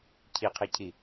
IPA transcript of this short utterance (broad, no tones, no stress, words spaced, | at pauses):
cʰiqʰecʰi